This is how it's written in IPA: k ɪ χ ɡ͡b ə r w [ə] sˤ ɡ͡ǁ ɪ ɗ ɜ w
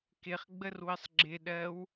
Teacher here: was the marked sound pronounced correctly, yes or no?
yes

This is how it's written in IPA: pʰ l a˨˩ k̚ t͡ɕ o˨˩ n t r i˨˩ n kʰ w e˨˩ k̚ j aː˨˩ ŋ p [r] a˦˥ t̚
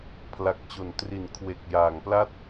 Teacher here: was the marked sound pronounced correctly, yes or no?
no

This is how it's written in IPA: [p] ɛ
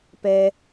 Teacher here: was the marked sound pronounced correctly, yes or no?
yes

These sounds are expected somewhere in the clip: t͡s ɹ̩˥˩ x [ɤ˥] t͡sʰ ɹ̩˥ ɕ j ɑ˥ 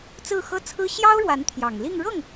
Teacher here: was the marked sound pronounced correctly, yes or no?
yes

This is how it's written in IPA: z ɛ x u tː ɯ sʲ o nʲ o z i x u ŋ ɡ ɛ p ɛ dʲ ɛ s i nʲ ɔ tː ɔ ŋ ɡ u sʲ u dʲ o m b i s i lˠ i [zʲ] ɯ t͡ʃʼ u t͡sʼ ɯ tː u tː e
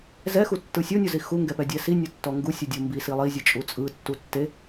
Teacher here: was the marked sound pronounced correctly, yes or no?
yes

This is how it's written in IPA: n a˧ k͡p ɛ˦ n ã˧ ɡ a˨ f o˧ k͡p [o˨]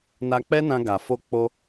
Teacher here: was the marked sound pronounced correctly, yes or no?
no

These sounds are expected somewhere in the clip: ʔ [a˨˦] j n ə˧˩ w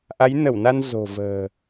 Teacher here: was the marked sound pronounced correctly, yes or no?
yes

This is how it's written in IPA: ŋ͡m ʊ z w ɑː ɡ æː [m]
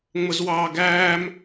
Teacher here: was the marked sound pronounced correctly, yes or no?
yes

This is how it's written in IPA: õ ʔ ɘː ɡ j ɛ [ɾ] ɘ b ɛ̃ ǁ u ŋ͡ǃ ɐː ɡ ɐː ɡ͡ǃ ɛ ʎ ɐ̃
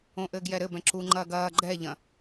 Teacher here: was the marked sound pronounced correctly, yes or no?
yes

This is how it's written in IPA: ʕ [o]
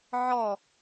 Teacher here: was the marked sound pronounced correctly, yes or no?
no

